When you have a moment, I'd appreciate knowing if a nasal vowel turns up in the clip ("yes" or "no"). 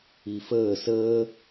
no